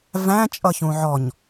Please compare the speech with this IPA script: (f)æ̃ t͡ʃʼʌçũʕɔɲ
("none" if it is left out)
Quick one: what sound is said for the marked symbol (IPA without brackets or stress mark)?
v